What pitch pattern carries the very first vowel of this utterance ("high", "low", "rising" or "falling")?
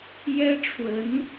high